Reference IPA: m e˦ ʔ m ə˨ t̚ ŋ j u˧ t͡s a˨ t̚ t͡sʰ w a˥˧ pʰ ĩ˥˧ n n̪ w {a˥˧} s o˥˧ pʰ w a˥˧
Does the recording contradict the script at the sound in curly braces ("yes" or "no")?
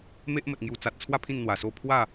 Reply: yes